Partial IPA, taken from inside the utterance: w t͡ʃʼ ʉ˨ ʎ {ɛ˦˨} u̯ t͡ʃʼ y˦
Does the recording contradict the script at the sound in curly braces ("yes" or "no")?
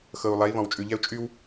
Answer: yes